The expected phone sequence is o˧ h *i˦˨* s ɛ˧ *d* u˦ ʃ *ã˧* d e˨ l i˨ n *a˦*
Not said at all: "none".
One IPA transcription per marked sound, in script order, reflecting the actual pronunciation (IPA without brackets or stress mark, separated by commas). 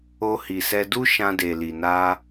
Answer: i˨, d, ã˧, a˧